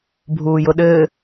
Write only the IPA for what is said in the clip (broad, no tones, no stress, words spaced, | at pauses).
bʱuːjʊɗɘː